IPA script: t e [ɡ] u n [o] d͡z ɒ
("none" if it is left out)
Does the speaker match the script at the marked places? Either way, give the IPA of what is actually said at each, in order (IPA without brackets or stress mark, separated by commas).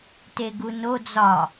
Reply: ɡ, o